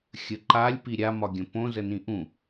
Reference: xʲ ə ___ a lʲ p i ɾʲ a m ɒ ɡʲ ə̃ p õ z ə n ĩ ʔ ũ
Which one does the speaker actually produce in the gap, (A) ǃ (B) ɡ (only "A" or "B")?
A